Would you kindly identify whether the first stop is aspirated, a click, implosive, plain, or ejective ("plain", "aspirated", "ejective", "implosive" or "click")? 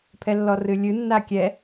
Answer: aspirated